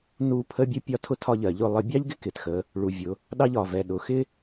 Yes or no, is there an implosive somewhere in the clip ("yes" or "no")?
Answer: yes